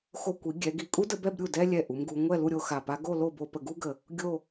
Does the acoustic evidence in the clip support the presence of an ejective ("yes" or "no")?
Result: yes